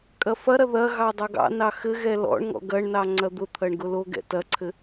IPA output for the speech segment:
kʼ ɐ f ɐ ɾ ɐ ð ɐ ɣ ɑ dˤ ɐ ɡ ɑ̰ n ɑ x ɘ ɣ ɛ l ɔ̰ ɳ ŋ ɔ̰ ɡ ɐ ɳ n ɑ ŋ͡ǀ ɐ d̪ ʊ t̪ʰ ɐ ɳ ɡ ʊ l o ɡ ɛ̰ t ɐ ǀʰ ɘ

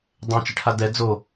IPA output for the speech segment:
dˤ ɛ̃ t͡ʃ ɪ ʈʰ a d ɛ d͡z o

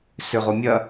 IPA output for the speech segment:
s ʏ ʁ o mʲ ɐ

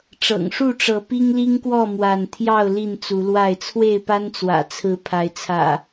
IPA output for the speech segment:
ʈ͡ʂ ɤ̰˨˩ ŋ ʂ u˥˨ ʈ͡ʂ ɤ˨˦ p i˦ ŋ l i˦ ŋ k w ɔ˥˨ m w a˥˨ n t̪ʰ j ɑ˥˨ ʊ̯ l i˥˨ n t͡s u˨˦ l w a˥˨ ɪ̯ t͡sʰ w e˥˨ ɪ̯ p a˦ n t͡s w ä̰˨˩ t͡sʰ ɹ̩˨˦ pʰ a˨˦ ɪ̯ t͡sʰ ä̰˨˩

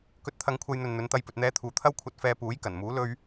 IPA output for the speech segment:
k ɵ˧ t̚ t̪ʰ ɐ˧ ŋ kʷʰ ɐ˧ j n̪ ɵ˨ n n̪ ɵ˨˧ n t̪ ɐ˧ j p ɵ˨ t̚ n̪ ɛː˧ t̪ʰ uː˨ t̪ʰ ɐ˥ w kʷʰ ɐ˧ t̚ f ɛː˧ p uː˨˥ j k ɐ˨˩ n m uː˨˥ l ɵ˧ ɥ

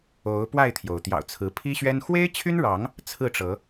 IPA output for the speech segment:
o˨˦ ʊ̯ p w a˥˨ ɪ̯ t̪ʰ j o˩ ʊ̯ t̪ j ɑ̰˨˩ ʊ̯ t͡sʰ ɹ̩˨˦ pʰ i˦ ɕ ɥ ɛ˦ n x w e˦ ɪ̯ t͡ɕʰ y˦ n ɻ ɑ˨˦ ŋ | t͡sʰ ɹ̩˥˨ ʈ͡ʂ ɤ˨˦

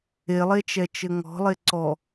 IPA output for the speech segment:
e lˠ e t͡ʃ ɛ t͡ʃ ɘ ŋ ɔ̤ lˠ e ǀ ɔ

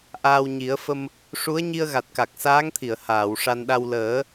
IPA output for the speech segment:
ʔ aː˧ w ɲ i˨˩˦ ə̯ f ə˧ m | ʂ u˧˥ ə̯ ɲ i˧ ə̯ ɣ a˨˩ t̚ k a˨˩ k̚ s aː˧˥ ŋ t̪ʰ i˨˩˨ ə̯ h aː˨˩˨ w ʂ a˧ n ɗ a˧ w l əː˨˩˦

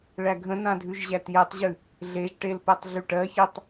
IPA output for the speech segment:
ɭ æ ɡʱ ə̃ n ã dʱ ʉ ʒ ʑ æ t j ɛ tˤ ʑ ʉ | ɮ e ʒ ʈ e l p ɛ tˤ ɮ y ʈ ɜ ç e tˤ

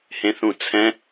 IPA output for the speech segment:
h ẽ θ ũ t͡sʰ ɛ̃

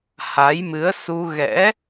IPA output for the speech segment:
h a˨˦ j m ɨ˨˦ ə̯ s u˧ ɣ ɛ̰˧˥

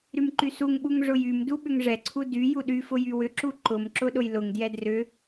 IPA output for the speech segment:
ɾ y m ǃ y s u ŋ ɓ u ŋ ʐ ʊ j y m d u ɓ ʏ ŋ ʐ ɛ ǀʰ u d y j u ɗ y f ʊ j y w ʏ ǁ u ǃ ʊ m ǁ ʊ ɗ ʊ j l ʊ ŋ d j ɛ d r ʏ

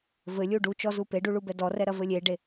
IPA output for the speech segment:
v ɘ lʲ u ɖ u t͡ʃ ɔ z u p e ɖ u ɭ u b ɛ d ɔ r ɛ ɾ ɐ v ɘ lʲ e ɖ e

